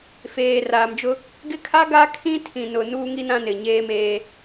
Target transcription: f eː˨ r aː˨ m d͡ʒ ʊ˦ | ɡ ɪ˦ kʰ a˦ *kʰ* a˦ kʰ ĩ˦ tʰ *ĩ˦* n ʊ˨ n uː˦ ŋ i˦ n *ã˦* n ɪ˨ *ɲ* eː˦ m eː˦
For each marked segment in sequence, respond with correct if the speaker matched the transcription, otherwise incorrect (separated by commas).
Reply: incorrect, incorrect, correct, correct